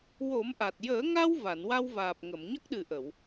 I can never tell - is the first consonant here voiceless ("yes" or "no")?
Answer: no